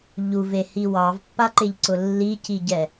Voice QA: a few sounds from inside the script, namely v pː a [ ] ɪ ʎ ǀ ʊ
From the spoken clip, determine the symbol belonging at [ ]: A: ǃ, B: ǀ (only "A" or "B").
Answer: A